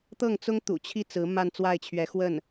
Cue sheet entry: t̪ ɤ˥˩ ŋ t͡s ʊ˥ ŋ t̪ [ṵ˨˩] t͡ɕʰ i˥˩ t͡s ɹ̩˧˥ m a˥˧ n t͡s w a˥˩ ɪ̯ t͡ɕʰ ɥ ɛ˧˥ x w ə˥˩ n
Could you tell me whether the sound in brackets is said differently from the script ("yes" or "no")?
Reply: no